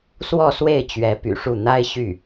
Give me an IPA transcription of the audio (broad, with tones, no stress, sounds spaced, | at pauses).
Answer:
s w ɔ˥˧ s w e˥˩ ɪ̯ t͡ɕ ɥ ɛ˧˥ p y̰˨˩ ʂ u˥˩ n̪ a˥ ɪ̯ ɕ y˥˩